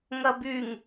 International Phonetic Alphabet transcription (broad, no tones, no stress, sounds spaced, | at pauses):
ŋ ɐ b y ŋ